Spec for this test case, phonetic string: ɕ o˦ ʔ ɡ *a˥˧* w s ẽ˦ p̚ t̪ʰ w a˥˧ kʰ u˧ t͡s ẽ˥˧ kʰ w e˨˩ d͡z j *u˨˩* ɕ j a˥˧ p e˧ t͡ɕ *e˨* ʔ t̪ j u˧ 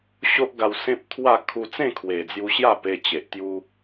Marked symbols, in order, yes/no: no, no, yes

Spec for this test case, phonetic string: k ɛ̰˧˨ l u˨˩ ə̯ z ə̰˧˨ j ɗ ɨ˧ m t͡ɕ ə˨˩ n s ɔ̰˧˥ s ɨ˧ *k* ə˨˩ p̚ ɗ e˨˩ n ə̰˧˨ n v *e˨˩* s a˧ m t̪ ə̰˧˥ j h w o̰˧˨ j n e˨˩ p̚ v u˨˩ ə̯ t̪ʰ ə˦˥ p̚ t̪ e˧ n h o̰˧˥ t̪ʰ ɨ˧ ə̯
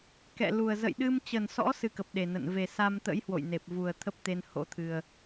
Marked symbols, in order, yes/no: yes, yes

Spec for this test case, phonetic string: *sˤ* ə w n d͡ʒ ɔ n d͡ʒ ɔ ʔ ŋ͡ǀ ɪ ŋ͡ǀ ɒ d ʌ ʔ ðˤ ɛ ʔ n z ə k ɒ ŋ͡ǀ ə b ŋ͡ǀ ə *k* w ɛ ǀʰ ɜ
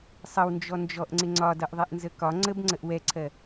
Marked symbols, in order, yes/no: yes, no

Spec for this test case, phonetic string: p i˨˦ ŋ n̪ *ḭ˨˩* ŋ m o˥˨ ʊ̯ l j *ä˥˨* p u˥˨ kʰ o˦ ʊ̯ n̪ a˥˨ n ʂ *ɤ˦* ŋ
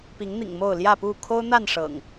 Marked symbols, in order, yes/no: yes, yes, no

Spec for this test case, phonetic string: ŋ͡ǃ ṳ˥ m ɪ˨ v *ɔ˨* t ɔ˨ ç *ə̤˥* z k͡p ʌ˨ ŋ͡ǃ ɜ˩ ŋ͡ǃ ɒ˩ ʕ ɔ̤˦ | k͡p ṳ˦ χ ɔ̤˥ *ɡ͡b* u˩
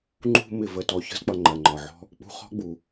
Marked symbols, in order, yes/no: no, yes, yes

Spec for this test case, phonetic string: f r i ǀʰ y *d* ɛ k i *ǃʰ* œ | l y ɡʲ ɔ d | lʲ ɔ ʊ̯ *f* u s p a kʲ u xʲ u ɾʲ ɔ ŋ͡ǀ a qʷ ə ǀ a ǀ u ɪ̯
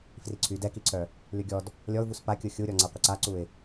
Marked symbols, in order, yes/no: yes, no, no

